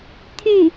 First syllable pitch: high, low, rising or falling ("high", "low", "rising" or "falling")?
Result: falling